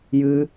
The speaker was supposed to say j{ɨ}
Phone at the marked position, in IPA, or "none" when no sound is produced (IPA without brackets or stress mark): ɨ